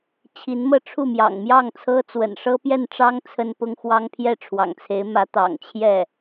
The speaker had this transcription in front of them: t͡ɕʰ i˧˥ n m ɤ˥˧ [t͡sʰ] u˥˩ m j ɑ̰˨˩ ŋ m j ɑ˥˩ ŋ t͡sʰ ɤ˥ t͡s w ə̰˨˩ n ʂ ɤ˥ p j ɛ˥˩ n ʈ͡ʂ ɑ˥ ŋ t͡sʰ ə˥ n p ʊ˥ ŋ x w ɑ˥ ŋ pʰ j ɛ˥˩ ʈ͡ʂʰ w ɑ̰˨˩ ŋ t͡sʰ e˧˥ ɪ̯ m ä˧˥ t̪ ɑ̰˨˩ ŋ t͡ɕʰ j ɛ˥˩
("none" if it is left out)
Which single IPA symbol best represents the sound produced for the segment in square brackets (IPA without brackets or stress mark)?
ʈ͡ʂʰ